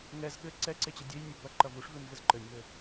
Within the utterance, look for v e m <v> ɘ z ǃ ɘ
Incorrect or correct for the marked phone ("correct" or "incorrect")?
correct